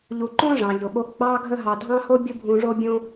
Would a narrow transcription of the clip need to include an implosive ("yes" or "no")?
yes